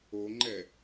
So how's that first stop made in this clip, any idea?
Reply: click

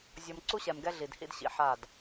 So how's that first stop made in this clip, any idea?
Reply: click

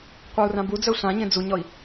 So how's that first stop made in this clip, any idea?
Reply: plain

